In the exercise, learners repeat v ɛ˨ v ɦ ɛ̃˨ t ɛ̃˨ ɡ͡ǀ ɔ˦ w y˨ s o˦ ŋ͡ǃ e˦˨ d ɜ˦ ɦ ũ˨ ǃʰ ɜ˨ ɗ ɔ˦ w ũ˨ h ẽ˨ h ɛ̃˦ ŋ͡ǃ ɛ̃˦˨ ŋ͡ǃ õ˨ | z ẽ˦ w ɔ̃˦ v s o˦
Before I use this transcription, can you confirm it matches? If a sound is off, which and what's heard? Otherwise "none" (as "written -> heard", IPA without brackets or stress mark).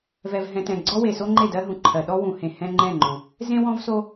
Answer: y˨ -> e˨